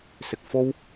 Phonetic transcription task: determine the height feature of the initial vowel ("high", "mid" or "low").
high